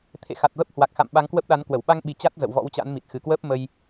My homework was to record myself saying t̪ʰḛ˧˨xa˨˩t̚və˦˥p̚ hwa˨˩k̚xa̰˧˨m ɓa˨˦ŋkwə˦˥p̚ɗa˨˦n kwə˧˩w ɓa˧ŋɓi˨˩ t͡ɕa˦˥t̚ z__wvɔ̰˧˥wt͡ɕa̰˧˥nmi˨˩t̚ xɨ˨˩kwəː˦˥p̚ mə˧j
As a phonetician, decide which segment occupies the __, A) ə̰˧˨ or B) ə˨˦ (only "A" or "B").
A